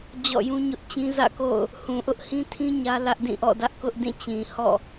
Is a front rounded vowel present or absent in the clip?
absent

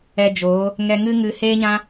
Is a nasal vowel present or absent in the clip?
present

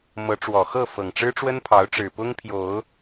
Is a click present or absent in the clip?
absent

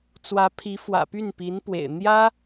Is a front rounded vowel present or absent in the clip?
present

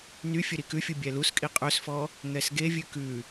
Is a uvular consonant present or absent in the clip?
present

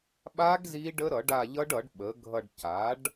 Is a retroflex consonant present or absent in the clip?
present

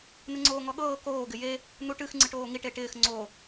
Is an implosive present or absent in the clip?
present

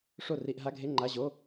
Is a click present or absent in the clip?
present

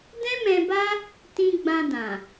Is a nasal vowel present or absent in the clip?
present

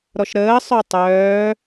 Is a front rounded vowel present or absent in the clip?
present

